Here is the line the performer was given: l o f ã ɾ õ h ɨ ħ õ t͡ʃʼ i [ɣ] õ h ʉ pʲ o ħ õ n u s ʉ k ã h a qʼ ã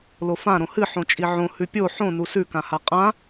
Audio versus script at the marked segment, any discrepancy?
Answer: yes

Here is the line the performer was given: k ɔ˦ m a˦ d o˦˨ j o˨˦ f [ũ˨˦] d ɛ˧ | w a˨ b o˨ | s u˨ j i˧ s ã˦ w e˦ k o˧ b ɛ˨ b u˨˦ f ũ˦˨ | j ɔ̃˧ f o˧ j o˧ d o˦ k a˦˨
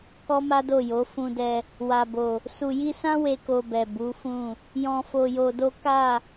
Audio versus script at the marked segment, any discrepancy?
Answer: yes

